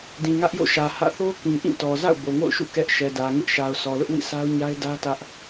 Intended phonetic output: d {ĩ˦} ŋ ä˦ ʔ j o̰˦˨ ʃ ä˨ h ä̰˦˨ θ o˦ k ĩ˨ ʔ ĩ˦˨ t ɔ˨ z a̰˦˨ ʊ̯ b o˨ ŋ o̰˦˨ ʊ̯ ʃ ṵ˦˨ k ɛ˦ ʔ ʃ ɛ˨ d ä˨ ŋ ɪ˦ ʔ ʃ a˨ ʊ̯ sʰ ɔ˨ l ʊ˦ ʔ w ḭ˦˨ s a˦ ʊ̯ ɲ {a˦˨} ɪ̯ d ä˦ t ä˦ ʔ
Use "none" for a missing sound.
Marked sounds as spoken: ĩ˨, a˦

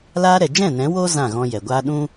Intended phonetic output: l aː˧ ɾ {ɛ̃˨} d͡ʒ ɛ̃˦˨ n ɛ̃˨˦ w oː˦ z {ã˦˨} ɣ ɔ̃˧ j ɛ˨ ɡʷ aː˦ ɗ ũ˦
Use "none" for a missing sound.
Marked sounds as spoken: ɛ˨, ã˦˨

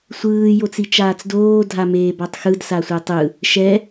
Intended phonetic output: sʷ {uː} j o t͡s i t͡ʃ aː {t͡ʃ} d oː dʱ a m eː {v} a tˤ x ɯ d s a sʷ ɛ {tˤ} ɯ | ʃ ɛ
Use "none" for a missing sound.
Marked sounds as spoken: ɯː, t͡s, b, tˤ

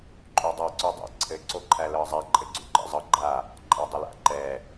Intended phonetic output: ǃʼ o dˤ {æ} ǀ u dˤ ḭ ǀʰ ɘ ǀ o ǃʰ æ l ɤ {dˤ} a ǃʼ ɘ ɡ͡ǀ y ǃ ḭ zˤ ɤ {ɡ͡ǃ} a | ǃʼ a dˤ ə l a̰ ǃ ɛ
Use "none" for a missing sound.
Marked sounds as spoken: a, zˤ, ɡ͡ǃ

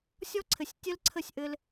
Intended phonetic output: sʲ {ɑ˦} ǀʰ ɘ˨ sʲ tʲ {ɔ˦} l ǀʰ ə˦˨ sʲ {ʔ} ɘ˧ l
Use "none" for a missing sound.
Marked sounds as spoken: ɔ˦, ə˦, ʔ

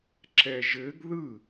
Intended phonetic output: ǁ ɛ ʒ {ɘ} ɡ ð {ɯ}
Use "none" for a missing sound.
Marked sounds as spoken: ɘ, ɯ

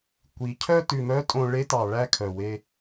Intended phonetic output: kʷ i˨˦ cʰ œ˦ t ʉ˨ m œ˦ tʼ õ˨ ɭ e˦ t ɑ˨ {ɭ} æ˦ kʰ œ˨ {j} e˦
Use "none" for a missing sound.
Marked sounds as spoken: ɭ, w

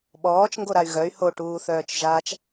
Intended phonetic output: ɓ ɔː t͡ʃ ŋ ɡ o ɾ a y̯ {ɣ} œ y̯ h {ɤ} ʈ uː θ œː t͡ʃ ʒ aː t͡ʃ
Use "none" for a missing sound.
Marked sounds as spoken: ɣ, o

